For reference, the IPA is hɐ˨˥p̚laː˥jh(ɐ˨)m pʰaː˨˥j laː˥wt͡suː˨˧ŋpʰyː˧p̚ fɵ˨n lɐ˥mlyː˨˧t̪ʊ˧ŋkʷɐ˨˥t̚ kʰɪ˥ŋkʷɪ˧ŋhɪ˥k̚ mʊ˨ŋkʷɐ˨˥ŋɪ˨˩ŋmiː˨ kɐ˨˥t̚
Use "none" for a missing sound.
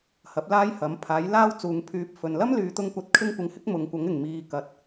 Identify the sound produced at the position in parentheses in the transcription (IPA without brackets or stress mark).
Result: ɐ˨˥